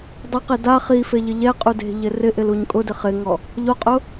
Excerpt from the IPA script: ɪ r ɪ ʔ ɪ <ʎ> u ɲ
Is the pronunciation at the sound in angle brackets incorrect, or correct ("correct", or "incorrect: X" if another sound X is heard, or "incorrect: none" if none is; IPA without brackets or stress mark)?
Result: incorrect: l